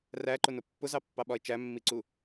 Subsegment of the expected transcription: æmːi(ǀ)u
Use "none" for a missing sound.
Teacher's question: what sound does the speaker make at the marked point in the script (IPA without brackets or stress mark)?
ǀ